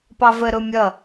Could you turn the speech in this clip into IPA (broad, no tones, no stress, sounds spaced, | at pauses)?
p ɑ v ə ɾ ʊ mʲ ʌ